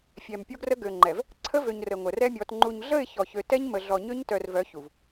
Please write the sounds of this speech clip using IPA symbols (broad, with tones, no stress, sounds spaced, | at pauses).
fʲ ɛ˨ m pʲ o˦ ɡ r ə˦ ɡ ø˨ ŋ͡ǃ ɛ˨ v | ǀʰ ə˦ v ø˨ ɲ r ə˨ ŋʷ ə˨ r ɛ˦ mʲ ɔ˨˦ t ŋ͡ǃ u˨ ɲ ɮ ə˦˨ ɪ̯ ç ɔ˨ ç ø˨˦ t ɛ˦ ɲ m ə˨ ɮ ɔ˨ ɲ ø˦ ɲ t œ˨ r v œ˨˦ ç u˨ v